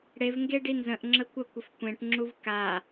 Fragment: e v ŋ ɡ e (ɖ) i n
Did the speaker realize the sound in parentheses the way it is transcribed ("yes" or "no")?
yes